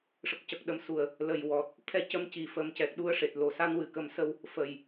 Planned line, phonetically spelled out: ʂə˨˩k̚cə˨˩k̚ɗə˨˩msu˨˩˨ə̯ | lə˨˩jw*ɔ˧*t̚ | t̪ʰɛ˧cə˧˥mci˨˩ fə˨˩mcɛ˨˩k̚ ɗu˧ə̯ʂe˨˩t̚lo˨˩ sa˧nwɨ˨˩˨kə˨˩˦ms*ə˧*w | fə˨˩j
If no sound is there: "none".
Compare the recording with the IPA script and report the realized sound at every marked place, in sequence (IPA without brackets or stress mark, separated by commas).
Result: ɔ˨˩, ə˧